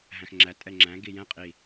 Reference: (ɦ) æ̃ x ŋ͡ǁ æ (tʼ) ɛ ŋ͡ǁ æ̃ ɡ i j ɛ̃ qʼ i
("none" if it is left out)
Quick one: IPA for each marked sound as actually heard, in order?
ɦ, tʼ

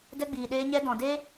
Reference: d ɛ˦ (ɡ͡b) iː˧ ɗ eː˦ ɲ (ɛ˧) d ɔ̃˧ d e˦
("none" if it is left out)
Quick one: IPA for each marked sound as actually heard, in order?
ɡ͡b, ɛ˦

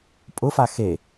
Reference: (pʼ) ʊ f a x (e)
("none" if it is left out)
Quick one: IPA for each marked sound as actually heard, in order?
pʼ, e

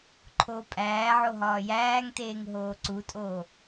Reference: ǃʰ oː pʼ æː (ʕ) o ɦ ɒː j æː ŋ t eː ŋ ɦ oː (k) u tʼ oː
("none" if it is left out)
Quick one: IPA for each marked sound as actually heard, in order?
ʕ, ǀ

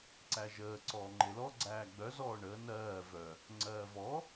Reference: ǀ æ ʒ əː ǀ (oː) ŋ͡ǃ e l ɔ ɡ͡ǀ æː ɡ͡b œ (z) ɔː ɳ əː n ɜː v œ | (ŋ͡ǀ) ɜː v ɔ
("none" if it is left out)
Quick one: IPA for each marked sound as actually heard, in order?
ɔː, z, ŋ͡ǀ

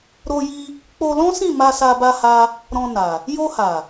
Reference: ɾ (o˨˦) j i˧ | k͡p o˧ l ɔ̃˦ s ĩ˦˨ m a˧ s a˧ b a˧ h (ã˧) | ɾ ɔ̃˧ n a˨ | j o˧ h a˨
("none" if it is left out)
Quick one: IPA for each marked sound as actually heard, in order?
o˧, a˧

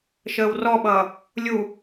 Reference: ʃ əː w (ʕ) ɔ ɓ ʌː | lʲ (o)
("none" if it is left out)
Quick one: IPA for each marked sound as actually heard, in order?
r, u

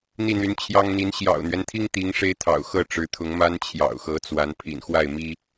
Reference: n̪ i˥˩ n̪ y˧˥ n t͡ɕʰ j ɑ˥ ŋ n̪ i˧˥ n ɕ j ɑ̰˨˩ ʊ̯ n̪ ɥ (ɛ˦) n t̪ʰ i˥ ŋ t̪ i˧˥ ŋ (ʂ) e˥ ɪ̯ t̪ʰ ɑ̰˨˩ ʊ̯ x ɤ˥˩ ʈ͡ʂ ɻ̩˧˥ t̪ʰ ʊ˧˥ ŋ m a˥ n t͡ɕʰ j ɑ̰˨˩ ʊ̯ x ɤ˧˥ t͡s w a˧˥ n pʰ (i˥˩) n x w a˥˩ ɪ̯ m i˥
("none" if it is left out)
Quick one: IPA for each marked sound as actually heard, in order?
ɛ˦, ʂ, ḭ˨˩

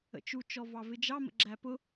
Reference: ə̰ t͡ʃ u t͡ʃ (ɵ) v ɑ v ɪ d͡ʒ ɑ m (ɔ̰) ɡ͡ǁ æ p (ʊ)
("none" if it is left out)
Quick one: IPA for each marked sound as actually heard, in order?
ɔ, ə̰, ʊ

